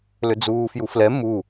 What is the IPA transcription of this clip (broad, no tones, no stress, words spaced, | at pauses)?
lʏd͡zuːfjuflɛ mu